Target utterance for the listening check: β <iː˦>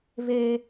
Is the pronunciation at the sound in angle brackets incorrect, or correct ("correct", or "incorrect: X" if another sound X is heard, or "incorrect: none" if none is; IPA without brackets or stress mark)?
incorrect: eː˦